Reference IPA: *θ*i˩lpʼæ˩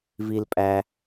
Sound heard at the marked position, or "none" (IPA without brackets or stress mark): v